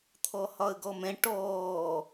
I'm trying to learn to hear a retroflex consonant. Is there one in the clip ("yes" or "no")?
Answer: yes